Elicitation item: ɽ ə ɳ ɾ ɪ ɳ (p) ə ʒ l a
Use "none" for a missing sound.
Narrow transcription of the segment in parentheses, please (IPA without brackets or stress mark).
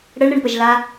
p